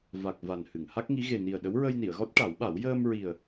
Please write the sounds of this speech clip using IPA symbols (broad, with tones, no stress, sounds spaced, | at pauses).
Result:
v a˨˩ k̚ v a˨˩ n h ɨ˨˩˨ ŋ h a˦˥ k̚ ŋ i˧˥ ɣ e˨˩ n i˨˩ ə̯ ɗ ə˧˥ w ɹ ə˧ j n i˨˩˨ ə̯ ɣ ɔ˦˥ t̚ ʈ a˨˩˦ w ɓ a˨˩˦ w j əː˧ m ɹ i˨˩ ə̯